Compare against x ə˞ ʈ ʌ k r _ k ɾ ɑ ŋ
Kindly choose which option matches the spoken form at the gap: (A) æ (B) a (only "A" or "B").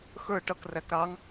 A